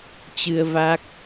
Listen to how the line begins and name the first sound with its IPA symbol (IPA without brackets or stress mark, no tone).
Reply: t͡ɕ